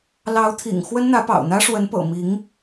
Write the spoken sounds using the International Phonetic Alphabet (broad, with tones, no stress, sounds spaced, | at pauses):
l ɑ˧˥ ʊ̯ t̪ʰ ḭ˨˩ ŋ x w ə˥ n n̪ ä˧˥ p ɑ̰˨˩ ʊ̯ n̪ ä˥ ʂ w ə˧˥ n p ɤ̰˨˩ m i˧˥ ŋ